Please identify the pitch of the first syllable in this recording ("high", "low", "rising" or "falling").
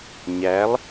rising